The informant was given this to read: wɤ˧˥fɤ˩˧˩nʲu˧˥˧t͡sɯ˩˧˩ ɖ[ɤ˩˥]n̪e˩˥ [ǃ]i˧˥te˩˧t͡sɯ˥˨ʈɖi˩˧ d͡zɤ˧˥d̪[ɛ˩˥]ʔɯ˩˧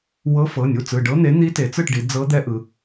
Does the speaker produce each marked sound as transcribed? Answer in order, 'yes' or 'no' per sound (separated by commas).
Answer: no, no, no